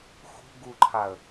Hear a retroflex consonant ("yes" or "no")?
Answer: no